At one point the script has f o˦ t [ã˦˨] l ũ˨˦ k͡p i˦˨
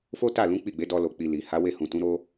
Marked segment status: incorrect: a˦˨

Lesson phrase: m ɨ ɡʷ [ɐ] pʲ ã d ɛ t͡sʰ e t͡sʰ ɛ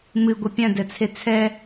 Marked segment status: correct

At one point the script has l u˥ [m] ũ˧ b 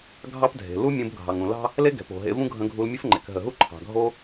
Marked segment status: incorrect: mʲ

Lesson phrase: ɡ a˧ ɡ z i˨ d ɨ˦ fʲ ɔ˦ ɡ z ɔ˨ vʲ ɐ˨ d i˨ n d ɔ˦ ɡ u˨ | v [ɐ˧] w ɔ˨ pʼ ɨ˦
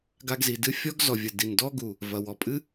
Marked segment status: incorrect: ɐ˨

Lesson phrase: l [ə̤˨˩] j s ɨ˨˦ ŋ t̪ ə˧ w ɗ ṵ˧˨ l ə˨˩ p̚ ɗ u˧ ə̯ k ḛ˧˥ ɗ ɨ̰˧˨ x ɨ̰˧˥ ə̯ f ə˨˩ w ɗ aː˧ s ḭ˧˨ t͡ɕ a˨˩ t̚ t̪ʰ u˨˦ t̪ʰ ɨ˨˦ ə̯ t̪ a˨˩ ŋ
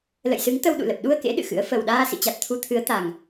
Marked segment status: incorrect: ə̰˧˨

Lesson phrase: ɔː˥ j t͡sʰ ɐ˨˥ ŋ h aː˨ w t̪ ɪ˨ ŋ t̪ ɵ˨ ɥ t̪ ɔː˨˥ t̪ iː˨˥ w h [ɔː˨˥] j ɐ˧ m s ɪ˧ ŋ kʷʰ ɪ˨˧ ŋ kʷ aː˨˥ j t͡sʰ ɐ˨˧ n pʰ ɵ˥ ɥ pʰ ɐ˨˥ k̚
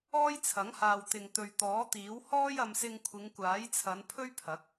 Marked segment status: incorrect: ɔː˥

